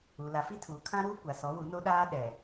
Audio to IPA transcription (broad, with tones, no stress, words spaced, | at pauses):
u˨ la˨fi˦ tʰuː˨kʰã˦ɾuː˦ kʷa˨sɔ˨˦wu˨˦ no˦ɗaː˦ ɗɛ˨